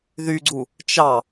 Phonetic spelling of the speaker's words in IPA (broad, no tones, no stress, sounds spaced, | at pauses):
ð y ɡ͡ǀ u | t͡ʃ ɑ